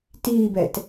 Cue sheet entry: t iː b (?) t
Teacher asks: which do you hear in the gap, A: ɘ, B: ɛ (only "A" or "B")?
B